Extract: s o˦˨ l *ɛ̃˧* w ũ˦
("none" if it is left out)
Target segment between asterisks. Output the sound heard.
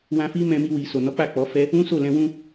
ɛ̃˧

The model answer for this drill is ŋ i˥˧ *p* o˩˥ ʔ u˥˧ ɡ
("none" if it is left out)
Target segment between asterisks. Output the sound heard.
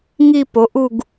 p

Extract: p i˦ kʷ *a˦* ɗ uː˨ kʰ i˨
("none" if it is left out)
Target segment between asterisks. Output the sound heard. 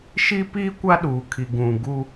a˦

